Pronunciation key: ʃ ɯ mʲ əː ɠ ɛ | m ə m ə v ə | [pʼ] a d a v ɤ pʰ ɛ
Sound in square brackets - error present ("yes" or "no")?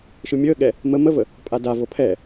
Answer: no